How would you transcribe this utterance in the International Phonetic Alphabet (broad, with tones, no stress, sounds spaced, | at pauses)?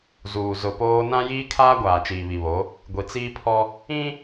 z uː˨ z ʊ˨ p oː˦ n ã˦ j iː˦ kʰ aː˦ ɡʷ aː˨ t͡ʃ iː˨ β i˨ β o˨˦ | ɡʷ i˨ t͡s iː˦ pʰ ɔ˦ | ĩ˦